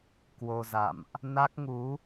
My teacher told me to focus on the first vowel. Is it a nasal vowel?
no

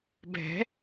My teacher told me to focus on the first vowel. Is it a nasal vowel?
no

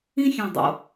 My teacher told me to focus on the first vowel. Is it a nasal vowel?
yes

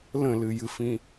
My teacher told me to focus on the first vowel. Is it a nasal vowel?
yes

